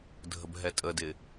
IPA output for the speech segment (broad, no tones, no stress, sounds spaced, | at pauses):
dʱ ə b ɦ ɛ tʼ ə d ɪ